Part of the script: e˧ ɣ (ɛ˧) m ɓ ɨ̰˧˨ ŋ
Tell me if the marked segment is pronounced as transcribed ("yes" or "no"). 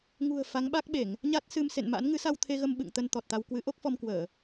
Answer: no